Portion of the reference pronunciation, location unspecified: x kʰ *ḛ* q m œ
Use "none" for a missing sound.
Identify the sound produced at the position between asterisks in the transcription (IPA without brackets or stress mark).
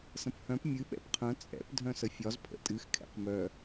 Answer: ɛ̰